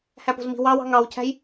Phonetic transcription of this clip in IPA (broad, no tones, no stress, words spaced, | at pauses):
hæpo̤zmi̤ wɑwɑ̤ ŋɑwcʰæ̤j